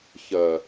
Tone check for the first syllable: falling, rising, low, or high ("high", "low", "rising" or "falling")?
low